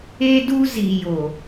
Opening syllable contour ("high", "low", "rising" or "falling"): high